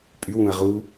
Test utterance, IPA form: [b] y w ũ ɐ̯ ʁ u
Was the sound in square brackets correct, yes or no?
no